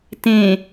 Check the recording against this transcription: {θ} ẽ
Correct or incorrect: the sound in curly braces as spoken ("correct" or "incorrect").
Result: incorrect